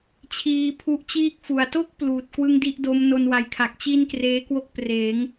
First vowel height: high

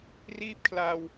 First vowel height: high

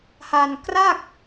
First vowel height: low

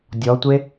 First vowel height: mid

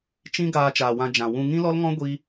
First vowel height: high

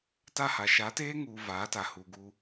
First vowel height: low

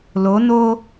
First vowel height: mid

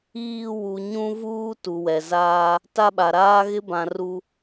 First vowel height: high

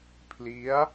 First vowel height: high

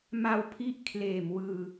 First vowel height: low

